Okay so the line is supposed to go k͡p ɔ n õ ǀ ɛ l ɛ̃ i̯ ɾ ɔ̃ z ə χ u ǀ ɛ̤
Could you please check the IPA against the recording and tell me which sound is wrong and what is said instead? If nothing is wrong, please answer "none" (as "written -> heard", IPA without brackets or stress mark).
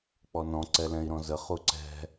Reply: õ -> ɔ̃